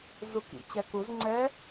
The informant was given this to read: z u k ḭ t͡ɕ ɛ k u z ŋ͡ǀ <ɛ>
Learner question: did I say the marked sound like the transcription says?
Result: yes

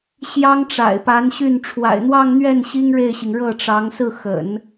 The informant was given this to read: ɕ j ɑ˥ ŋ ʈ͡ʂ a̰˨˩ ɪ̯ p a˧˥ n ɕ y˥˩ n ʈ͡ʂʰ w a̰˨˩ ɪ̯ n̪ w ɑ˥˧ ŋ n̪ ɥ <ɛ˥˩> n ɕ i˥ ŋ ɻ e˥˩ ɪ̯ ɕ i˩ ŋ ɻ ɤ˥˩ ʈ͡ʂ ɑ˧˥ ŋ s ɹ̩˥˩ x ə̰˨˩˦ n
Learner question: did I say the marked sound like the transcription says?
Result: yes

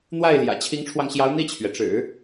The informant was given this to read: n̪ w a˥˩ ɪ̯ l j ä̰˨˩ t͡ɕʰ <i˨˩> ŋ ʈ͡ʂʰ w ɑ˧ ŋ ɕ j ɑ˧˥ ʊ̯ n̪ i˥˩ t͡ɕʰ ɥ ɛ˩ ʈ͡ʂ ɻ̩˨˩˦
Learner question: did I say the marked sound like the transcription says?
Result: no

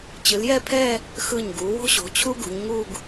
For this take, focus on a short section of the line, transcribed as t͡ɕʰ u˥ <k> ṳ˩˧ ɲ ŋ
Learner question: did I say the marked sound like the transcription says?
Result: no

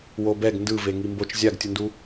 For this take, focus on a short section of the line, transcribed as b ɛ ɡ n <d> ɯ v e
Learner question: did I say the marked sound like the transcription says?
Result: yes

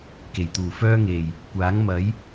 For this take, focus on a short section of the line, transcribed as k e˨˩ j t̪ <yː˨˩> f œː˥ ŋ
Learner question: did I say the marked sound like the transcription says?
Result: no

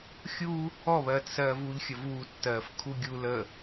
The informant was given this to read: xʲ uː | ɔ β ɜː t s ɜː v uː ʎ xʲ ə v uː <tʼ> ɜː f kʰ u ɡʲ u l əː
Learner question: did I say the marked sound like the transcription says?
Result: no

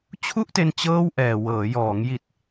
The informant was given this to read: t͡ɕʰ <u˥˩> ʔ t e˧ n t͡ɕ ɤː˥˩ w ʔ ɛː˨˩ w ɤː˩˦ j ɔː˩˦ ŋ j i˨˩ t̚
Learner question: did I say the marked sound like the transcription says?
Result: yes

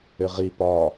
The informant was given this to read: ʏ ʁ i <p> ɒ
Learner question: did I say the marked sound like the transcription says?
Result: yes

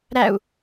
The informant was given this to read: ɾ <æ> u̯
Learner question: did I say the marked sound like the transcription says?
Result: yes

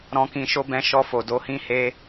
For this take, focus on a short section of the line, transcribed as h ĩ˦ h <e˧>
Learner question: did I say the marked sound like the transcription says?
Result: no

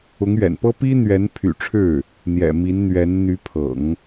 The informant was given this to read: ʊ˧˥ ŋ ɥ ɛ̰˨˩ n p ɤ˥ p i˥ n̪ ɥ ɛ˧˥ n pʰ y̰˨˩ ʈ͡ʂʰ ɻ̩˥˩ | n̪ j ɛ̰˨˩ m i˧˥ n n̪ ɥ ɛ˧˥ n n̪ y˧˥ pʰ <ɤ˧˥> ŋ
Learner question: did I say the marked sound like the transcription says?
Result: no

